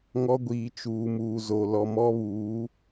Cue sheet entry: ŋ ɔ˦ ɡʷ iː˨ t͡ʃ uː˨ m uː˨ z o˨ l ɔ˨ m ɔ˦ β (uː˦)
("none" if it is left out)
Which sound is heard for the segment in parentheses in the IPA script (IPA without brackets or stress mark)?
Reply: uː˨˦